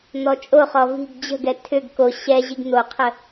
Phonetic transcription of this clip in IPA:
n̪ ɔ t͡ʃʼ o χ ɔ v i̤ ɡ d͡ʑ ə̤ ɡ ɛ tʰ ʏ ɡ k o ɕ ɛ ʑ i ɡ n̪ o qʰ ə

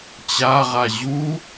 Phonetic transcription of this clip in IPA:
t͡ɕ a ʁ a ʑ u

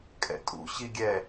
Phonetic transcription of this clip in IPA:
kʼ ɛ̰ tʼ ṵ ɕ i ɡʲ ɛ

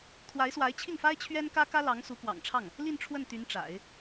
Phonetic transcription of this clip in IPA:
t̪ʰ w a˧˥ ɪ̯ s w a˧˥ ɪ̯ t͡ɕʰ i˥˩ ŋ f a˥ ɪ̯ t͡ɕʰ ɥ ɛ˥ n k ä˥ k ä˥ l ɑ˧˥ ŋ s u˧˥ k w ɑ̰˨˩ ŋ ʈ͡ʂʰ ɑ˥˩ ŋ | l i˥˧ n ʈ͡ʂʰ w ə˥˩ n t̪ y˧˥ n ʈ͡ʂ a̰˨˩˦ ɪ̯

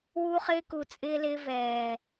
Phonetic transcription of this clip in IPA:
w u˦ χ ɪː˦ k u˨ t͡sʼ ɪː˦ l ɪː˦ v ɛː˨

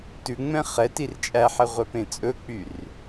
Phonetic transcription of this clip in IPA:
t ʉ ŋ͡m ɛ̃ χ ɛ t i r t͡ʃʼ æ ħ ɛ ʁʷ œ p ẽ t͡sʼ ɵ k͡p y r

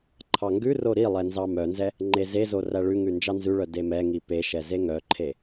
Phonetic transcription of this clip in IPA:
ǃʰ ɑ ŋ ɡ ʉ r o ɾ i lˠ ɛ n z ɑ m œ n z ɛ | ŋ͡ǃ e z e z o r æ ɭ ʉ ŋ ʉ n d͡ʒ ɑ n z ʉ ɭ œ d e m ɛ ŋ i p e ʃ ɛ z e ŋ œ ǃʰ e

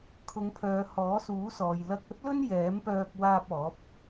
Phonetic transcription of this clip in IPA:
kʰ ʊ˨˧ ŋ pʰ œː˨˧ h ɔː˨˥ s uː˨˥ s ɔː˨ j l ɐ˧ k̚ ɐ˥ t̚ l ɵ˥ n j ɛː˨˥ m p œː˧ k̚ w aː˧ p̚ ɔː˨˥ p̚

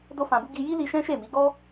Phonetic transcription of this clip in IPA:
d o˦ f ã˧ b u˦ ɡ i˧ j i˦ l i˧ ʃ ɛ̃˦ ʃ e˦˨ m i˨˦ ɡ ɔ˦

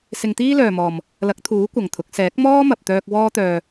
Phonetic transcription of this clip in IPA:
s ɪ˧ ŋ t̪ iː˥ l œː˨ m ɔː˨ m | l ɐ˨˥ k̚ t̪ʰ uː˨˥ kʷ ɐ˨ ŋ t̪ʰ ʊ˨˥ k̚ s ɛː˨˥ k̚ m ɔː˥ m ɐ˨ p̚ t̪ œː˧ k̚ w ɔː˥ t̪ œː˧

